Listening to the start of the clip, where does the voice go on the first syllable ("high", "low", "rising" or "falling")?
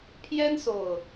high